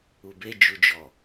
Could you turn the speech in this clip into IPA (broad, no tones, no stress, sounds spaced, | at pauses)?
u b e d͡ʒ u d͡ʒ ɔ